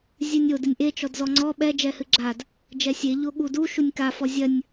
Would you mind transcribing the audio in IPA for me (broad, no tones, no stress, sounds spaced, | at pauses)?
zʲ ɨ nʲ o d ɨ nʲ ʔ e t͡ʃ ɔ d z ɔ ŋ͡ǀ ɔ ɓ ɛ d͡ʒ ɛ h ɨ ɡ͡ǁ a d | d͡ʒ ɛ sʲ e ʎ o ɠ u d u ʃ u nʲ k a f ɔ zʲ ɐ nʲ